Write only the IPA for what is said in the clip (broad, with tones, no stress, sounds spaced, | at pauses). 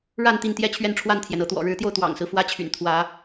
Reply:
ɻ a˥˨ n t̪ i˥˨ n t̪ j ɛ˥˨ t͡ɕʰ ɥ ɛ˥˨ n ʈ͡ʂʰ w a˥˨ n t̪ʰ j ɛ˩ n ɤ˦ t̪ w ɔ̰˨˩ ɻ ɻ̩˨˦ t̪ j o˧ ʊ̯ t̪ w ɑ̰˨˩ ŋ s ɹ̩˦ f w ä˦ t͡ɕʰ y̰˨˩ n t̪ʰ w ä˨˦